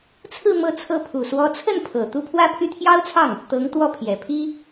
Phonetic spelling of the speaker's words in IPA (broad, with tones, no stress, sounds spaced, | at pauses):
t͡sʰ ɹ̩˥˧ m ɤ˥˧ t͡sʰ ɤ˥˩ pʰ u˨˩ s w ɔ˧˥ t͡sʰ ə˥˩ n pʰ ɤ˨˩ t̪ u˥˧ pʰ w ä˥˧ pʰ y˥˩ t̪ʰ j ɑ˥ ʊ̯ t͡sʰ ɑ˥˩ ŋ | t̪ ɤ˧˥ ŋ t̪ w ɔ˥˩ pʰ j ɛ˨˩ pʰ i˥